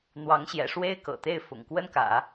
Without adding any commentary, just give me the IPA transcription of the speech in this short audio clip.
n̪ w ɑ˧˥ ŋ ɕ j ɛ̰˨˩ ʂ w e˥ ɪ̯ k ɤ̰˨˩ t̪ e˥˩ ɪ̯ f ʊ̰˨˩ ŋ k w ə˥ n k ä̰˨˩˦

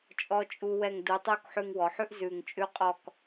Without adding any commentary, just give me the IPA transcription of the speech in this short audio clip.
t͡ʃʼ ɔ˧ t͡ʃʼ u˧ w ɛ˧˩ ŋ d u˩˧ tˤ u˥˧ k ħ ʉ˧ ŋ w ɔ˩˧ ħ ʉ˥ ʔ z ʉ˧˩ ŋ t͡ʃʼ ʉ˥ qʼ ɔ˥˧ k

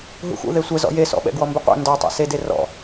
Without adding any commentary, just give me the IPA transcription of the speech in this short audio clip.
ɦ ṵ x ṵ ð e sʷ ɛ z ɔ̰ j e s ɔ̰ ɓ ɛ̰ ɡ w ɔ m b ɪ qʷ ɛ̰ n d ɔ tˤ ḛ s e d e r ɔ̰

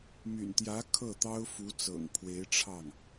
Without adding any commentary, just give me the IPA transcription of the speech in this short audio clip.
m y̰˨˩ n t̪ j ä˧˥ kʰ ɤ˥˩ t̪ ɑ˥ ʊ̯ f u˧˥ t͡s ɤ̰˨˩ ŋ pʰ w e˧˥ ɪ̯ ʈ͡ʂʰ ɑ˥˩ ŋ

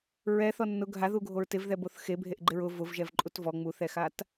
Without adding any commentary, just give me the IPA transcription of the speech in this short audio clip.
ɹ ɛ θ ɔ nː ʊ ɡʱ a ð u ɡʱ o ɹ t ɪ v ð ɛ b o θ x e bʱ e ʔ ɡ͡ǃ ɪ ɹ ʊ v ʊ v ʒ ɛ v ǃʼ u t v ɔ ŋ͡m u θ ɛ x a t

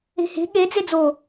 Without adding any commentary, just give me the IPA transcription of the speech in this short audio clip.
e̤ h e̤ ɠ e d͡z e d͡z o

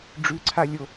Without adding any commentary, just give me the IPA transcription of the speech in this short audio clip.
ɖ͡ʐ ʉ ǀʰ a lʲ o

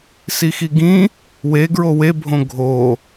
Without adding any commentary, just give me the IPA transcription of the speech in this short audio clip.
s i x i ɡ ĩ | w e ɡ ɹ o w e bʱ õ ɡʱ o

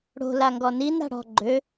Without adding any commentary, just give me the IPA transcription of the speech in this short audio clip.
ɽ o̤ l a ŋ ɡ ɔ n i n ɾ a̤ ɽ ɔ̤ ɡ͡ǃ ø

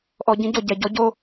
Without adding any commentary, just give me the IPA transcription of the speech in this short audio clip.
ʔ ɔ ɟ ĩ ɟ o ɟ ɛ ɟ ɔ ɟ o

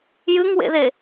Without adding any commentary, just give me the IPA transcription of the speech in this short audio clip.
j ɨ ŋ w ḛ ð e

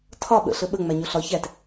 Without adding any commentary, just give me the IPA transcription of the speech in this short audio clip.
tʰ ɒ ɓ ə̰ ɬ ə ɓ ə ŋ͡m æ ɲ o ɬ ɒ ç æ t

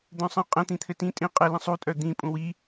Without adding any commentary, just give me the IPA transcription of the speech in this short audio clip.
d̪ œ̃ sˤ ə̃ qʼ ə̃ t̪ ĩ t̪ʰ ɘ t ĩ tʼ ĩ qʼ ɘ l ə̃ sˤ u tʼ œ d̪ ĩ pʼ ũ w i

